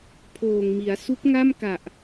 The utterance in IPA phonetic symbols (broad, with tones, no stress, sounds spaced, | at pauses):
pʰ oː˨˩ ŋ m i˩˦ a̯ s u˦˥ k̚ ŋ a˥˩ m k a˨˩ ʔ